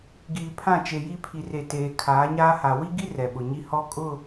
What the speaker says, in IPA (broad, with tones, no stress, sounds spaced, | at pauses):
ɡ iː˨ pʰ ã˦˨ t͡ʃ e˨ j i˦ pʰ i˨ r e˨ t eː˨ kʰ aː˨˦ ɲ aː˦ h a˨ w i˦ ɡ i˦ r ɛ˨ ɓ ʊ˨ ɲ i˦ h ɔ˦ kʼ ʊ˦˨